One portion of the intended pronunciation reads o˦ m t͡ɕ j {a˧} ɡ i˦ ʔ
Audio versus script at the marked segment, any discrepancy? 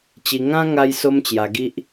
no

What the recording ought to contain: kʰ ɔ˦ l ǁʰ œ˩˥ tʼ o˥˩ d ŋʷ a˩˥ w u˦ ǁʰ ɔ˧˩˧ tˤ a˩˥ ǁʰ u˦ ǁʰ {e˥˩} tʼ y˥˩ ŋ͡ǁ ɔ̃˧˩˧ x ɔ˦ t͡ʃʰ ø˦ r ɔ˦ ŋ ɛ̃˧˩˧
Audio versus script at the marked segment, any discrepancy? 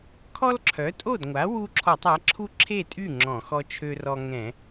no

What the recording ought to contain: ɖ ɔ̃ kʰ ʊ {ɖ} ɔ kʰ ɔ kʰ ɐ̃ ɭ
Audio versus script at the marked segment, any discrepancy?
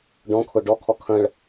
no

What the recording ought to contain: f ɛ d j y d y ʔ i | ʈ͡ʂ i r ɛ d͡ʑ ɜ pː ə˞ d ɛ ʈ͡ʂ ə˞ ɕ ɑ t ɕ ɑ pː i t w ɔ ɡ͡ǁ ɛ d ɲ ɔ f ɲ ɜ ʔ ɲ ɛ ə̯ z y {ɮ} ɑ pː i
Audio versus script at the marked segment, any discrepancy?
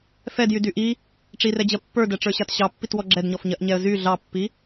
no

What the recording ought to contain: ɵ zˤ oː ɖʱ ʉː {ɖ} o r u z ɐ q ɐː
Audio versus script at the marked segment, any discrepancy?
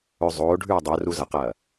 yes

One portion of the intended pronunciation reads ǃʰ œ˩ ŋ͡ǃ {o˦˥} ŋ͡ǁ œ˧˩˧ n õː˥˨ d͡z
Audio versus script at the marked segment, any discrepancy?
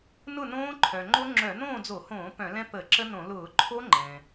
no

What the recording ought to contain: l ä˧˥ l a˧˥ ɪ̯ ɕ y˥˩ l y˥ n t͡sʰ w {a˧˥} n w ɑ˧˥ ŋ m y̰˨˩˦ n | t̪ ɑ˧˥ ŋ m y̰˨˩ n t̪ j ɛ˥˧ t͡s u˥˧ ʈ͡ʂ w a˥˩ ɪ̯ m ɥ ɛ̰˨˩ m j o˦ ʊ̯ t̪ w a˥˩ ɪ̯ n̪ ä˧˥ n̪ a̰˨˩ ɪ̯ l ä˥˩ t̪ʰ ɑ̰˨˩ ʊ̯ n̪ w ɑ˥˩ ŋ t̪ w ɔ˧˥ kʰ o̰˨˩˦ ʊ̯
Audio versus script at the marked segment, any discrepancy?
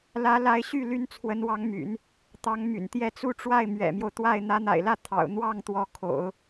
yes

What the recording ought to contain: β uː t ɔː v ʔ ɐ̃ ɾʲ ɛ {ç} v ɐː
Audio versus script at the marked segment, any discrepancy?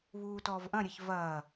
no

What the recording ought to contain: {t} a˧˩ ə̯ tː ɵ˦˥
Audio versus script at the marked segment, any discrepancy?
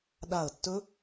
yes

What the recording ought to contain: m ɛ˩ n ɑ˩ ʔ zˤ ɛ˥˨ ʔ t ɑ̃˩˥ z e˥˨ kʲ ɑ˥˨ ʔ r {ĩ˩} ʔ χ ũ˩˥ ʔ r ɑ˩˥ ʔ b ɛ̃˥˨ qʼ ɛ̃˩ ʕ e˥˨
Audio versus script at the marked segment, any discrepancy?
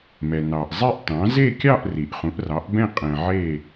yes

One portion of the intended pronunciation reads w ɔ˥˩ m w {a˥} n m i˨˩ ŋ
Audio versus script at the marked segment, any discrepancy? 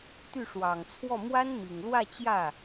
no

